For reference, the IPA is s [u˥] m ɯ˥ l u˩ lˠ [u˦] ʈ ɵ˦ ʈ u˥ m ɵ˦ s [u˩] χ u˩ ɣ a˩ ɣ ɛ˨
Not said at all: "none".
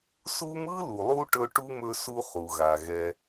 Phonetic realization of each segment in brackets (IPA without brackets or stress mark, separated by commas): u˥, u˦, u˦